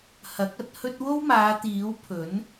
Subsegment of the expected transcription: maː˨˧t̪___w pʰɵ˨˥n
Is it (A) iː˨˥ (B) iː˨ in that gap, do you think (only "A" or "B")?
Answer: A